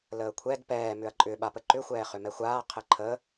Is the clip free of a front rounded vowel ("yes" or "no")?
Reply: no